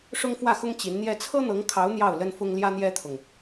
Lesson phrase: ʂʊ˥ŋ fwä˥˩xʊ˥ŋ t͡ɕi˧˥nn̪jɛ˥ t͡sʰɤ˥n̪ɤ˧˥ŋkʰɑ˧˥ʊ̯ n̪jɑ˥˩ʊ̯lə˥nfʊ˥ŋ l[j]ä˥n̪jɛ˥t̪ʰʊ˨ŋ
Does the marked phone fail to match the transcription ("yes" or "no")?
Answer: no